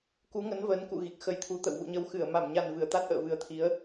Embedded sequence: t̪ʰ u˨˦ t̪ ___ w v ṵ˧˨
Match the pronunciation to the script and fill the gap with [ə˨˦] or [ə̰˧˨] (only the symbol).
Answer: ə̰˧˨